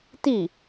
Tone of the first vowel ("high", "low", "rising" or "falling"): falling